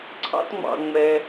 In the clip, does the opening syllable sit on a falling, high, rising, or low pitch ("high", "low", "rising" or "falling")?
high